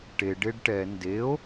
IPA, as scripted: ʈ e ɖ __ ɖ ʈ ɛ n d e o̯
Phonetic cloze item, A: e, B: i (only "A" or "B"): A